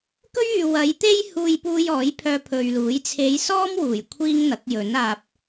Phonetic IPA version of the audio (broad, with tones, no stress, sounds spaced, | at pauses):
k ɵ˥ ɥ yː˨ w ɐ˨˧ j t̪ e˥ j h uː˧ j p uː˧ j ɔː˨˥ j pʰ œː˧ pʰ ɵ˨ ɥ l uː˨˥ j t͡sʰ e˨˧ j s ɔː˥ m w uː˨˩ j kʷʰ iː˥ ŋ n̪ ɐ˨˥ k̚ j ɵ˨˥ n aː˨ p̚